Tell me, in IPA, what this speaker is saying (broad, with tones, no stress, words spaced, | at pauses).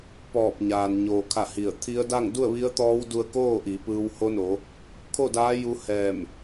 pɔː˧˩p̚ɲaː˩nɲoː˩kʰa˧˩ hi˧˩ə̯ t̪ʰi˧˥ə̯ da˥˨ŋ du˥˨ə̯ʋi˧˥ə̯t̪ɔː˧˥wdu˧ə̯ koː˥˨ʔi˩˧pɯː˧w ho˧˥no˩˧ | kʰo˥˨daː˧˥ ju˧˥hɛː˧˩m